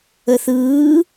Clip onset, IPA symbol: ə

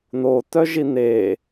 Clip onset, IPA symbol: n̪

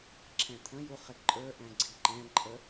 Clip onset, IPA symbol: ǁʰ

